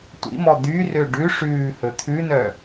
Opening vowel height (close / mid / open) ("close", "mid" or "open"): close